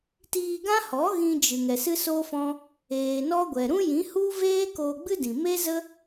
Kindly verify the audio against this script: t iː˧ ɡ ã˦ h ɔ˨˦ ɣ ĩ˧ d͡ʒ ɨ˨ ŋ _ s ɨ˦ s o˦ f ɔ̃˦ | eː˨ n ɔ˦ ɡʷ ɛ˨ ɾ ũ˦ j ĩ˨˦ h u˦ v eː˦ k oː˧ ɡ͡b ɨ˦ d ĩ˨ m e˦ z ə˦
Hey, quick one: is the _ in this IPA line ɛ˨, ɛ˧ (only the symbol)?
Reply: ɛ˨